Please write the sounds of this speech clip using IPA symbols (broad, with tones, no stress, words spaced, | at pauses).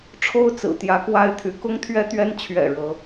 ʈ͡ʂʰo˥ʊ̯t͡sɹ̩˨˩ t̪jä˧˥kwa˥ɪ̯t̪ʰy˧˥ kʊ˥ŋt̪ʰɥɛ˥t̪ɥɛ˥n t͡ɕʰɥɛ̰˨˩ ɻɤ˧˥